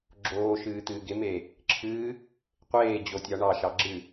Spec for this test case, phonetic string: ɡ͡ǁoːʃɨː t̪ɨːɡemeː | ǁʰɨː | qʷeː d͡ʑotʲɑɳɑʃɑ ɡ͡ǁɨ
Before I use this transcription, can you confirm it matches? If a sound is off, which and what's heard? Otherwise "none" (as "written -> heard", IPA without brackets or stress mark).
none